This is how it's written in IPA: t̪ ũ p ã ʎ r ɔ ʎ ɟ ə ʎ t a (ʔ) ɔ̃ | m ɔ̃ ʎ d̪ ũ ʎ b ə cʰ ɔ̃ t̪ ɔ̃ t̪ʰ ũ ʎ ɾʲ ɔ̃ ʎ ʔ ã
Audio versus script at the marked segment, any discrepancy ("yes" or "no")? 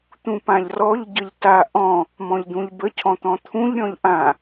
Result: no